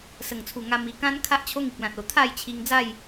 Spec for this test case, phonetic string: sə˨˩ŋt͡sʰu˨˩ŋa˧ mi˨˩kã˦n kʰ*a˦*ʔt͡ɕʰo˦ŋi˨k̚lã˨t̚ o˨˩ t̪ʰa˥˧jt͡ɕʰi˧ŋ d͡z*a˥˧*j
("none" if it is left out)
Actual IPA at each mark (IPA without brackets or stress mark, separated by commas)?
a˦, a˥˧